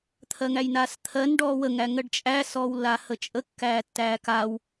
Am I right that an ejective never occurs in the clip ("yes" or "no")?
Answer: no